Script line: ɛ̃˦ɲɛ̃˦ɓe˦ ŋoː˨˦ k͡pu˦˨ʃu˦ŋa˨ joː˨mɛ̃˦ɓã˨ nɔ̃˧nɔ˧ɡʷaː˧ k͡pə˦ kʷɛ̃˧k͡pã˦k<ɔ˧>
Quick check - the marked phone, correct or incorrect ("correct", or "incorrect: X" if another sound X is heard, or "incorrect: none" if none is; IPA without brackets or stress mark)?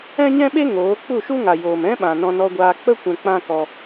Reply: correct